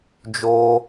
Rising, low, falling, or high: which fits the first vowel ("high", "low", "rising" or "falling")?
high